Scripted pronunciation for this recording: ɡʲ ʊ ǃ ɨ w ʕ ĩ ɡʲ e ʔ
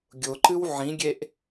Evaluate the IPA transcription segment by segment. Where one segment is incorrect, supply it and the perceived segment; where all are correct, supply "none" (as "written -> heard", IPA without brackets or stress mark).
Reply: none